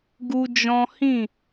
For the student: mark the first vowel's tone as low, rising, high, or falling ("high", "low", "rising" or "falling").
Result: high